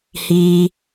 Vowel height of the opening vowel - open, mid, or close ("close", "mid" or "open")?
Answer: close